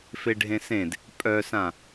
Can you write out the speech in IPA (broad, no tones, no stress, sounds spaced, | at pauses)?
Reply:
f e ɖʱ ẽ s ẽ d | pʼ œ s ã